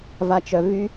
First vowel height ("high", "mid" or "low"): low